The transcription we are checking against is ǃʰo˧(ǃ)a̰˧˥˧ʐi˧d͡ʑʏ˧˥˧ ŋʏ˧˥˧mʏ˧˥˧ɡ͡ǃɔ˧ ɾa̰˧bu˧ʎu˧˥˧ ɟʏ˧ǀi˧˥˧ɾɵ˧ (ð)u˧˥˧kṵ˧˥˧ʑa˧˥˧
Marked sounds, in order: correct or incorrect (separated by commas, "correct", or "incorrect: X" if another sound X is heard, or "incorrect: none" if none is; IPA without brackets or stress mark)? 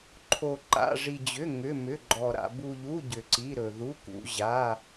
correct, correct